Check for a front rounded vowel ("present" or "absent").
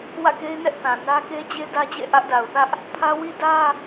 absent